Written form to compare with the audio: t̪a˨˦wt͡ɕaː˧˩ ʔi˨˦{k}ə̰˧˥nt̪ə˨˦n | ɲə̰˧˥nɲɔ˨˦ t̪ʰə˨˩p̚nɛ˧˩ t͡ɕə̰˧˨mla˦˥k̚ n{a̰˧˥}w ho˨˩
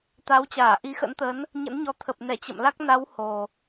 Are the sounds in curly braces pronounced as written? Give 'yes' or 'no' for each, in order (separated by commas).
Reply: no, no